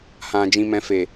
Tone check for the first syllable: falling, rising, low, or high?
low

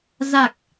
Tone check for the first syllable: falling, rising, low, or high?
low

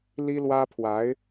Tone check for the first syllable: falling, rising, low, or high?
high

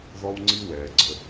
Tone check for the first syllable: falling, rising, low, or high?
high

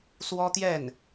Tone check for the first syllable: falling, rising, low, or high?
high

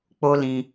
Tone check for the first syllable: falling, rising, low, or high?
high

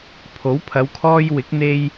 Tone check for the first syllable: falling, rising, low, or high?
rising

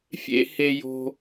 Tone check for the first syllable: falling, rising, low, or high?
high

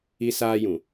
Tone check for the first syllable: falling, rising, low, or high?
high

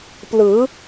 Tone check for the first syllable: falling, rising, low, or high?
rising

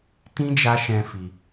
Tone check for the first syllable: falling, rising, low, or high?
high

